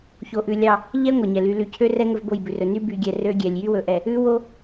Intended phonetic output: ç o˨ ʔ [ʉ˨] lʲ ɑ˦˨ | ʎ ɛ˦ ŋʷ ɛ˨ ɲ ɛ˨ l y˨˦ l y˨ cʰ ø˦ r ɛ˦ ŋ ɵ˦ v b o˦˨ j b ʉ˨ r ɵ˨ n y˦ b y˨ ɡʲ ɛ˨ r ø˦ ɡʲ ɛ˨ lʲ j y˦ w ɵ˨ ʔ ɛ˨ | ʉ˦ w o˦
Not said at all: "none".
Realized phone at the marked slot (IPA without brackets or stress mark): ʉ˨